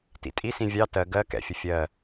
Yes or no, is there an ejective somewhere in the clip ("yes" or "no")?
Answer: yes